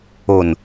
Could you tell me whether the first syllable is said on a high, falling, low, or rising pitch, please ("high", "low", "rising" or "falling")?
low